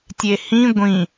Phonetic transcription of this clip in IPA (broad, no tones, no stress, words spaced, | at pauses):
tʲehĩ ɡʷĩ